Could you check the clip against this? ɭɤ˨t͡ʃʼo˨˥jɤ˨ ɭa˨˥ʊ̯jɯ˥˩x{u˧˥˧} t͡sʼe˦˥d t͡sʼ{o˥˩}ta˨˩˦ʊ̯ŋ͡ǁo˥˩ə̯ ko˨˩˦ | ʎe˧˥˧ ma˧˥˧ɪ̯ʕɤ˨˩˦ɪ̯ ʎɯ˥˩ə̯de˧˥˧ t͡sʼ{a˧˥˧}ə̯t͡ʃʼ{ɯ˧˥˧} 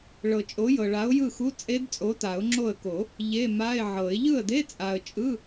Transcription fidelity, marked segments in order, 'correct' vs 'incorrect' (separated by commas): correct, incorrect, incorrect, correct